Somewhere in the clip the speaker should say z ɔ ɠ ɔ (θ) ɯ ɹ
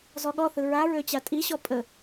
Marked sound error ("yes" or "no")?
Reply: no